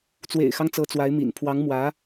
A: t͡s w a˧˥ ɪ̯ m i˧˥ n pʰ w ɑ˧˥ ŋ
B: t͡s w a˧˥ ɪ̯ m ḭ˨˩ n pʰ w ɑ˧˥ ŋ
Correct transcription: B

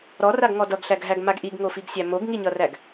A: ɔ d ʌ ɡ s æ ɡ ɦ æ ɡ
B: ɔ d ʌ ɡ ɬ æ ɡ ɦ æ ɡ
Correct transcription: B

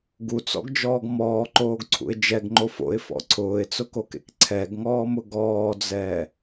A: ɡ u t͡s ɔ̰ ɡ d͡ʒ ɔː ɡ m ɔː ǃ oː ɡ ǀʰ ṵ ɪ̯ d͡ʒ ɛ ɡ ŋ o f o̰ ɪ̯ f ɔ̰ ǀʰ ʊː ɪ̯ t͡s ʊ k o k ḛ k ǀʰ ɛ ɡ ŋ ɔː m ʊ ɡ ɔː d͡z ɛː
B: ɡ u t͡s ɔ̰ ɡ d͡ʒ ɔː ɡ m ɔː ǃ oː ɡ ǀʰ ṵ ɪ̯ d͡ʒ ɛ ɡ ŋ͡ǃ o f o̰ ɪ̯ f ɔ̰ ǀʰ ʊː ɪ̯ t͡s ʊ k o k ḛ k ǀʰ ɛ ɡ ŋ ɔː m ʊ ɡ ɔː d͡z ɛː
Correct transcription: B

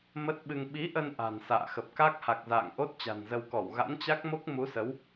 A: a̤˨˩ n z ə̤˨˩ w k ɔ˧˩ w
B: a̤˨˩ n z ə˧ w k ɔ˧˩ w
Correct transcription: B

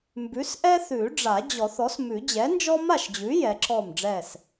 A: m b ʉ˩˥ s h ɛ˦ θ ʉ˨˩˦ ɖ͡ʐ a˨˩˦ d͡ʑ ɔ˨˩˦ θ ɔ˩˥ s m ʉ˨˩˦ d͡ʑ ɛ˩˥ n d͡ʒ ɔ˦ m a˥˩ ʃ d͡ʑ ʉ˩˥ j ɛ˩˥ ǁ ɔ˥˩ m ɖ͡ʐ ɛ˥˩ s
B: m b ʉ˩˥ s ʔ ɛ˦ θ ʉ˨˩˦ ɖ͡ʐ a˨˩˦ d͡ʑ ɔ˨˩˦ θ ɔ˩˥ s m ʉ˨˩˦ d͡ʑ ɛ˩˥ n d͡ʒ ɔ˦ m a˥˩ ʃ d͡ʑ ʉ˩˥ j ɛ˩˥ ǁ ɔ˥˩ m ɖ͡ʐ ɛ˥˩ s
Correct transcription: B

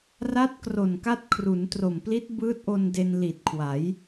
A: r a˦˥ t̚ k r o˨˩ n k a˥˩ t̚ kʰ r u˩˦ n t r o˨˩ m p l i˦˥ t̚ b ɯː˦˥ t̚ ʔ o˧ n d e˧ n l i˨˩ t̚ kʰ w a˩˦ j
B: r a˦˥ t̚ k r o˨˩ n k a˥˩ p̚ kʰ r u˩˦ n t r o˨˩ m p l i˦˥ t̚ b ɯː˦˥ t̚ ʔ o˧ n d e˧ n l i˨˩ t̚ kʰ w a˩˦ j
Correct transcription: A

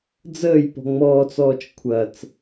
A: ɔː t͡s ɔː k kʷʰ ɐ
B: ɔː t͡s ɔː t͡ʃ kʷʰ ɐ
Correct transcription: B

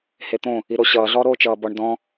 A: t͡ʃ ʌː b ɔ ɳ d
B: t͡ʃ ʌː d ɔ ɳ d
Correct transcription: A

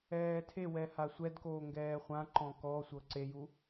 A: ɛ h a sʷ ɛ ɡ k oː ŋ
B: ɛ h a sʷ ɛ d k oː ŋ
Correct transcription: B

